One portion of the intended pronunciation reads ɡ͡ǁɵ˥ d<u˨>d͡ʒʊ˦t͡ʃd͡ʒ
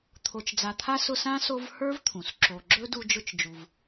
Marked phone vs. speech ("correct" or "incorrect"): incorrect